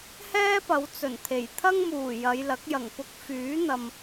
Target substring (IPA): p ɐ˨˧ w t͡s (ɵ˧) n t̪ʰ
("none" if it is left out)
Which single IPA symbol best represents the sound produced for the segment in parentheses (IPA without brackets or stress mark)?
ɵ˨˩